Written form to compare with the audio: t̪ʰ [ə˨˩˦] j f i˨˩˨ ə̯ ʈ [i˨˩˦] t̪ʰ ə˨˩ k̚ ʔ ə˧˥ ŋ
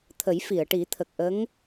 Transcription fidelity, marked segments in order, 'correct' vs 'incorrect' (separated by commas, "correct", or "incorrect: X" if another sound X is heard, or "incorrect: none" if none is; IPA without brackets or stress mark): correct, correct